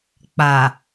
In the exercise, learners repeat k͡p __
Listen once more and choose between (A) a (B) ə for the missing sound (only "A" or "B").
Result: A